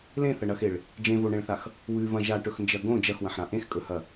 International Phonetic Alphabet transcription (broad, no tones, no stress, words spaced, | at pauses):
lẽθɐɳɐxeɭ | d͡ʒẽvoɳẽɭθax | wʉvɐ̃ ʒaʈɵxnd͡ʒɐ ɡõ d͡ʒɐxwɐ̃ħɾã ʔẽxkʼɵhɐ